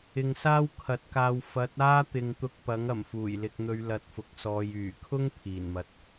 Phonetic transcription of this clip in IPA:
ɪ˨ ŋ s aː˥ w kʰ ɐ˨˥ t̚ k aː˧ w f ɐ˨˥ t̚ aː˥ t̪ ɪ˨ ŋ t̪ ʊ˧ k̚ p ɐ˨˥ ŋ ɐ˨˩ m f uː˨˩ j l ɪ˨ k̚ n̪ ɵ˨˧ ɥ l ɐ˨ t̚ f ʊ˨ k̚ s ɔː˨ j yː˨˩ kʰ ʊ˥ ŋ pʰ iː˨˩ n m ɐ˨ t̚

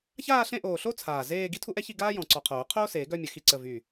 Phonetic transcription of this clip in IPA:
ç aː˥˧ ɬ ẽ˥˧ ʔ oː˧˩ ɬ o˥ t͡sʰ aː˧˩ z eː˥˧ ɡ i˥ tʰ u˥ ʔ ɛ˥ ç i˥˧ ɡ aː˥ j ɔ̃˧˩ ǀ ɔ˧˩ qʰ oː˨˩˦ qʰ oː˥ s eː˨˩˦ ɡ œ˥˧ mʲ ə˨˩˦ x i˧˩ ǀ ə˧˩ v y˧˩

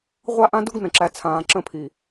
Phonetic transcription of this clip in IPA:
ʁʷ a˦ ʔ ã˦ d u˦ ɡ n ə̃˨ ǁ æ˨ t͡sʰ ãː˨ ǁ ə̃˦˨ pʰ i˨

